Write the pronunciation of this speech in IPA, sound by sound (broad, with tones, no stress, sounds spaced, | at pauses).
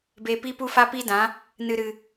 b eː˧ p iː˦ p u˦ f a˦ p i˦ d ã˨˦ | n ɨ˨ ɾ ɨ˨